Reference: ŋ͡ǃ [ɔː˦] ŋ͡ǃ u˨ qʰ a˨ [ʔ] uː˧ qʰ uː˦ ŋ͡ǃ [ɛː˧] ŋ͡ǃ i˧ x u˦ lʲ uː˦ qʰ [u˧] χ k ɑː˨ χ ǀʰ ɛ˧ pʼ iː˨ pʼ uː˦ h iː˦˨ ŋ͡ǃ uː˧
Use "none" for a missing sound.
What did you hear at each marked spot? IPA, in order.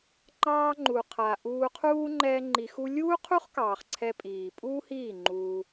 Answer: ɑː˦, ʔ, ɛː˦, u˦

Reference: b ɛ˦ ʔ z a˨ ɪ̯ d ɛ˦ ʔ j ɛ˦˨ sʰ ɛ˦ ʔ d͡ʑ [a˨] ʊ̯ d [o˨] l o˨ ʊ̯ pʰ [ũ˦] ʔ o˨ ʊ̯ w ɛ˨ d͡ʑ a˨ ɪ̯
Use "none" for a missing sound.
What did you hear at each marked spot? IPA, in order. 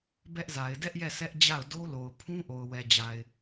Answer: a˦˨, o˦, ũ˦

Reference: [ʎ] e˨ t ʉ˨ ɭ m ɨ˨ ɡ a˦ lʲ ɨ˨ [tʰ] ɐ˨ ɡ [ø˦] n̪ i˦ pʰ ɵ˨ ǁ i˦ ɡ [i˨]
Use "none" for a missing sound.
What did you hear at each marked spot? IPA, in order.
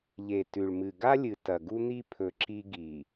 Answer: ʎ, t, u˦, i˨

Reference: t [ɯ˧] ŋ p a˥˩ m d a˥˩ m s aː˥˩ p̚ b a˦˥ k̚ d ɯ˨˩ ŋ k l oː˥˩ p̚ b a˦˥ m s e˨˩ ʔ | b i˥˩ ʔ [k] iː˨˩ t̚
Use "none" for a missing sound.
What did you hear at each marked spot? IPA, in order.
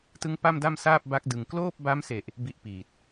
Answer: ɯ˦˥, p

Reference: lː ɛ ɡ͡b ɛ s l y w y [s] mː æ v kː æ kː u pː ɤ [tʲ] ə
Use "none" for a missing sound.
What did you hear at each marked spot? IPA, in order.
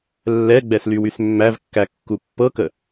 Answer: s, k

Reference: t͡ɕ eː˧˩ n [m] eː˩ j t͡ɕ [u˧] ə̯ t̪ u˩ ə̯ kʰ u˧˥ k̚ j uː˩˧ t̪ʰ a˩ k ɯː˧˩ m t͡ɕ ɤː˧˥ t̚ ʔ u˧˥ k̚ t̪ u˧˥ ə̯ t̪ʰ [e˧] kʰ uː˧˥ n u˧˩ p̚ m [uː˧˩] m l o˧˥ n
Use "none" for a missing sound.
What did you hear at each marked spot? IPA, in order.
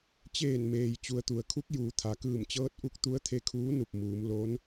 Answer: m, u˩, e˧, uː˩˧

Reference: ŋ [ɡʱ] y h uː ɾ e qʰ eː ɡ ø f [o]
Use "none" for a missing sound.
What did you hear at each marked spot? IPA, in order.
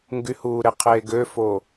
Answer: ɡ, o

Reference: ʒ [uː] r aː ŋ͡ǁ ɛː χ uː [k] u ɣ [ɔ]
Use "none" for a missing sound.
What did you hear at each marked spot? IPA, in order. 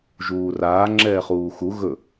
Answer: uː, x, ɵ

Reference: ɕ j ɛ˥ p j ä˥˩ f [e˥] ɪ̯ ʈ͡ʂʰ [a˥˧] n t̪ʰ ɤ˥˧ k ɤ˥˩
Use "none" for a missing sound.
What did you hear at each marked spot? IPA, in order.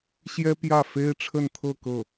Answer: e˥, ə˥˧

